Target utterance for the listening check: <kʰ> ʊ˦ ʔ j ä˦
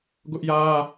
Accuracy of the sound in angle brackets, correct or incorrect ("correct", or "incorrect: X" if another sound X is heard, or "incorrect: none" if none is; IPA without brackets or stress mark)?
incorrect: ɡ